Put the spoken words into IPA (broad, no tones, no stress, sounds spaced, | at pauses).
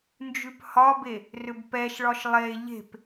n d͡ʒ ʉ p h ɒ b e | r ʏ b p ɛ ʃ ɭ ɒ ʃ lˠ e ʎ e̤ p